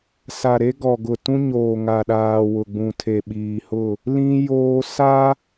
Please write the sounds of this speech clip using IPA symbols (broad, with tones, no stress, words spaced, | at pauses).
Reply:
sa˨ɾe˦ ɡɔ˨ɡʊ˨tũ˦ɲoː˨ ŋa˨ɗaː˨ wʊ˨ɡ͡bũ˨tʰe˨ ɓiː˨hʊ˦˨ | lĩ˦ joː˦ sa˦